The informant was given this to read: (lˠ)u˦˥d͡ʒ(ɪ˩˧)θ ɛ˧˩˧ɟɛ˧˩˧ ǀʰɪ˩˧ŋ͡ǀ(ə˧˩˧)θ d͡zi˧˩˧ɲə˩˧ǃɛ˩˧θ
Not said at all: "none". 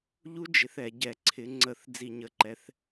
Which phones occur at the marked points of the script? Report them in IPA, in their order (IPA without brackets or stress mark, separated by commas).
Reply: ʎ, ɪ˩˧, ə˧˩˧